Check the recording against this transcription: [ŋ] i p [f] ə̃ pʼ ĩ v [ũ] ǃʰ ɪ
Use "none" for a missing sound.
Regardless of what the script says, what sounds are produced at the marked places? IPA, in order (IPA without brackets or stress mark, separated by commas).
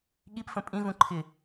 ɠ, f, ũ